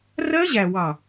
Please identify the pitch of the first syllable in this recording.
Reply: high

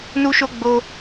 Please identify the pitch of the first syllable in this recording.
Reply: high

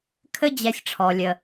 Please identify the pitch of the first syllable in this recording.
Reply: high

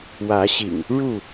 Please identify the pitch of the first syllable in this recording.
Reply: rising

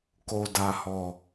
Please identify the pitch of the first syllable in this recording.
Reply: low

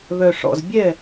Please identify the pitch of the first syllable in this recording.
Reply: low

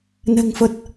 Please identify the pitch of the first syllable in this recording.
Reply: low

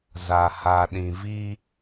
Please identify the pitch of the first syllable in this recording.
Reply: low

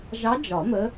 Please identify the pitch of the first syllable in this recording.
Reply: rising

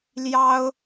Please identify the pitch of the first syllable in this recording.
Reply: high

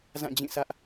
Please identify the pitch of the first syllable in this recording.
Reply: falling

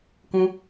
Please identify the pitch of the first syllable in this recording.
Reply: high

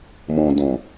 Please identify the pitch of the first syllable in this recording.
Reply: low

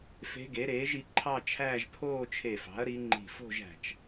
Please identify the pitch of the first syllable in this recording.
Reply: rising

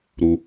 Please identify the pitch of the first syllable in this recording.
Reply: high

